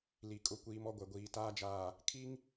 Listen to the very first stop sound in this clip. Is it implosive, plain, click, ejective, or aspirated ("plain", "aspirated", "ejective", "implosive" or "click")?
ejective